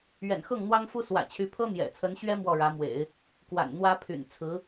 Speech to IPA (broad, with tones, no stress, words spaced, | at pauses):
ɥɛ̰˨˩nxɤ˥˩ŋn̪wɑ˥ŋfu˥ swä̰˨˩t͡ɕʰy˧˥pʰɤ˥ n̪jɛ̰˨˩t͡sʰə˧˥nɕɥɛ˥ mwɔ˥˩ɻä˧˥mwḛ˨˩˦ɪ̯ | kwa̰˨˩nn̪wä˥pʰy̰˨˩n t͡sʰɹ̩˧˥